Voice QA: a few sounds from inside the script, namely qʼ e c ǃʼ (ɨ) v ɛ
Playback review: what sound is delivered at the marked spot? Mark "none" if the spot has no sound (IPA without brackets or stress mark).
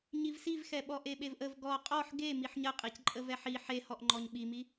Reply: ə